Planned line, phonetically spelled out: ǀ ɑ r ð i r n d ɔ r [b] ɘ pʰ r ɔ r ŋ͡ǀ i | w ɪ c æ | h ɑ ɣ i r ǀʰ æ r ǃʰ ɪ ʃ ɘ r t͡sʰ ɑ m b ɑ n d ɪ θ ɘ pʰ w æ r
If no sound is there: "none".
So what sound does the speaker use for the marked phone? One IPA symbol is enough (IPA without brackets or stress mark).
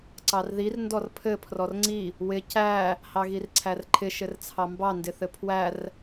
pʰ